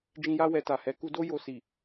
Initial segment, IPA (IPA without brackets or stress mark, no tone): d͡ʒ